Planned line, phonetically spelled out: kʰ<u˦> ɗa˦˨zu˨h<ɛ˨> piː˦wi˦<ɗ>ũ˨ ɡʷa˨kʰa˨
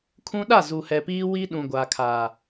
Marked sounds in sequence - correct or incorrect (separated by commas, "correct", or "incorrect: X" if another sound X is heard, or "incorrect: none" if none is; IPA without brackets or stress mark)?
incorrect: ũ˦, correct, correct